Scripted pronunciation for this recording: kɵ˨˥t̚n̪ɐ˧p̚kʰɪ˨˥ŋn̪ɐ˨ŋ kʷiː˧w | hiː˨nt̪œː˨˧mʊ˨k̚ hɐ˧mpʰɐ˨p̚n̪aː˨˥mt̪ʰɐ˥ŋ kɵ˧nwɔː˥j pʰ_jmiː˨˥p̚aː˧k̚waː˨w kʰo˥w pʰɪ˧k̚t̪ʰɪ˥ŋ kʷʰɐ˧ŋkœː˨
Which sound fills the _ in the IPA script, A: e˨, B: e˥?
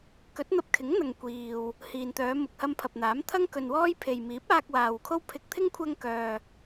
A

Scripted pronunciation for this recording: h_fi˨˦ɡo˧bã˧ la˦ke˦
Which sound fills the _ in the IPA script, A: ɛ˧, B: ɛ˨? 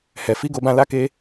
B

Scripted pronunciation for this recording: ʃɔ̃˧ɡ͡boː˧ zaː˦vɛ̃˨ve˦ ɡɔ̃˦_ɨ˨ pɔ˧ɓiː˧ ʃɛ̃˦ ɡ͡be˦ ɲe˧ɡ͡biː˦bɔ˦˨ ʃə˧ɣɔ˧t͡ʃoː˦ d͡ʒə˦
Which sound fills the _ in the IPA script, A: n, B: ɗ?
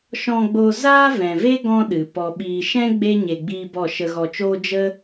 B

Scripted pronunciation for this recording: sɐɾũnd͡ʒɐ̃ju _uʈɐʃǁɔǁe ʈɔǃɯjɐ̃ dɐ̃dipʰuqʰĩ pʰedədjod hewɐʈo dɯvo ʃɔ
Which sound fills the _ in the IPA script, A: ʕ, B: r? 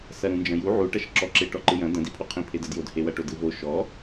A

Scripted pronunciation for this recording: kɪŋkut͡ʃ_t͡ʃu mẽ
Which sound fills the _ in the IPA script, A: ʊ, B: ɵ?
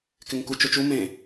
B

